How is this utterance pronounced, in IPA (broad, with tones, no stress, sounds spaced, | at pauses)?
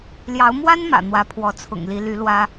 l j ɑ˧˥ ʊ̯ m w a˥ n m ä̰˨˩ n̪ w ä˧˥ pʰ w ɔ˧˥ t͡sʰ ʊ̰˨˩ ŋ l i˧˥ l y˧˥ l w ä˥